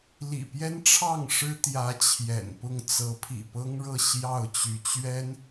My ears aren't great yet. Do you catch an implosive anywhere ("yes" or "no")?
no